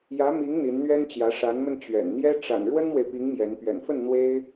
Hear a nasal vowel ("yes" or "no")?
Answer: no